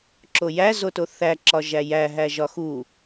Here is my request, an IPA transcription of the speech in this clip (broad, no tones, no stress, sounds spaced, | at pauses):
ǁ o j æ z o t o θ æ ǁ ɒ ʒ æ j æ ɦ æ ʒ ɒ x u